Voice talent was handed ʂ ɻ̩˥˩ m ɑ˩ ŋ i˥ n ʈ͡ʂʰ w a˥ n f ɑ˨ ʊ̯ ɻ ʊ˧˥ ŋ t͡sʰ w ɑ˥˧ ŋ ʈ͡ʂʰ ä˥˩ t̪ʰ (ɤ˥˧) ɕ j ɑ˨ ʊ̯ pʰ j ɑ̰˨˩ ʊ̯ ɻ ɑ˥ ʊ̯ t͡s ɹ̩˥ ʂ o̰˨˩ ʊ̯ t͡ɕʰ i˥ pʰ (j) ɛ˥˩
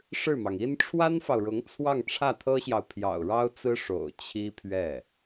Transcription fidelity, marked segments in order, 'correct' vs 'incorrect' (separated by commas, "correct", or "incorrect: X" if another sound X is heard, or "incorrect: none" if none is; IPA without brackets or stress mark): incorrect: ɤ˥, incorrect: ɥ